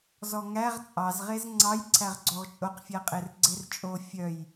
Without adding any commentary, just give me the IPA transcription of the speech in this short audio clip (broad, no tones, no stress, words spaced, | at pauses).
zɔŋæʁ t͡sʼɑzʁez ŋ͡ǀɑj ǀʰæʁɡ͡ǀoʁt͡ʃʼoqfʲæ qʼerɡ͡ǀert͡ʃʼo fʲœj